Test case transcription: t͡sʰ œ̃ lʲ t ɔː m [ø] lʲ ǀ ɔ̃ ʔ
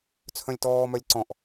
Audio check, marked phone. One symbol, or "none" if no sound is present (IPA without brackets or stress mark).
œ